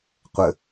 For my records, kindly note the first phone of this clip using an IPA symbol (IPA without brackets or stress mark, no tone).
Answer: qʷ